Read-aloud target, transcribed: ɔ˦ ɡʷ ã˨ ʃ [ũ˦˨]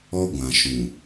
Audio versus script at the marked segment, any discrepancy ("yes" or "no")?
yes